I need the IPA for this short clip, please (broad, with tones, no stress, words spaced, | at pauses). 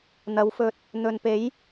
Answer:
n̪ɐ˨˧wfɵ˧t̚ | n̪ɵ˨npe˨˥j